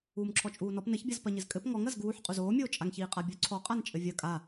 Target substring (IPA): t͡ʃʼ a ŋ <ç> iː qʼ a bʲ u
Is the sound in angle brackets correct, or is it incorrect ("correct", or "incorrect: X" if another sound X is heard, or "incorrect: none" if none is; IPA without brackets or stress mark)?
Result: correct